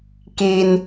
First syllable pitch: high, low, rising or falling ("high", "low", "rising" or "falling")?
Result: high